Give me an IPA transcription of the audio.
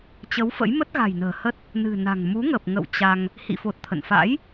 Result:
t͡ɕ ə˨˦ w f ə̰˧˥ j m ə˦˥ t̚ ɣ a̤˨˩ j n ə̤ː˨˩ h ə˦˥ t̚ | n ɨ̤˨˩ n a̤˨˩ ŋ m u˨˦ ŋ ə˨˩ p̚ ŋ ə̰˧˨ w t͡ɕ a˧ ŋ | h ḭ˧˨ f o˨˩ t̚ t̪ʰ ə̰˧˨ n f a̰˧˥ j

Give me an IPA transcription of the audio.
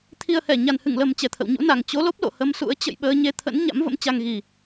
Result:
t̪ʰ i˨˩ ə̯ h ɛ˧˩ ɲ a˨˩ n h ɨ˧˩ ŋ l ə˨˩ m t͡ɕ ɛ˨˩ t̪ʰ ə̰˧˨ w ɲ ṵ˧˥ n a˨˩ ŋ t͡ɕ o˨˦ l o˦˥ p̚ l o̰˧˨ h ə˧ m s ṵ˧˥ ə̯ t͡ɕ ə̰˧˨ j ɓ əː˧ ɲ e˧ t̪ʰ ə̰˧˥ n ɲ a̰˧˥ m v ə̰˧˥ m t͡ɕ a˧ ŋ ɣ i˨˩

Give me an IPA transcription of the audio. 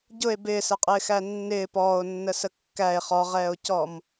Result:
ɟ ʊ e̯ b ɪː s ɛ qʼ ɪː x æ nː ɪː p ɔː o̯ nː ə s ə kː æ e̯ χ ɔ ʁ ɛː o̯ c ɔ m

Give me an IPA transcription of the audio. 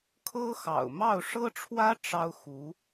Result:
kʰ ɤ˥ x ɑ̰˨˩ ʊ̯ m ɑ˥˩ ʊ̯ ʂ ɤ˥ ʈ͡ʂʰ w ä˥ ʈ͡ʂ ɑ˥ ʊ̯ x u˧˥

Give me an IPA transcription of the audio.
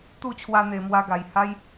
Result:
t̪ u˥˧ t͡ɕʰ w a˧ n̪ e˨˩ m w a˧ ɡ a˨˩ j h a˦ j

